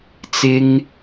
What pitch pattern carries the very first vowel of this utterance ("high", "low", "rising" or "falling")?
high